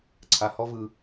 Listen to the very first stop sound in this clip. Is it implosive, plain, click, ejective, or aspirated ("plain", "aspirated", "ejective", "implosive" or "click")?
click